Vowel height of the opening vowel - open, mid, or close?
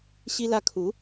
close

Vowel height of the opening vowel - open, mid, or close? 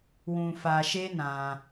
close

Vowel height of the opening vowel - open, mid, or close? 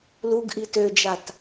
close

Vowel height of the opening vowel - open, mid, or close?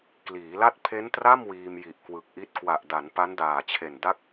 close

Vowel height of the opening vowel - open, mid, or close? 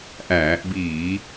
open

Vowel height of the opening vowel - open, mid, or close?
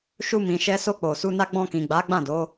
close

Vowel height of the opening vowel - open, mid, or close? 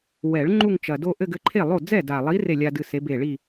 mid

